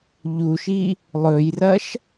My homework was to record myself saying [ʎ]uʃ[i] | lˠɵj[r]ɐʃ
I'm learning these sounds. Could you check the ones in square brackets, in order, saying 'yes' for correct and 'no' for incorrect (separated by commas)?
yes, yes, yes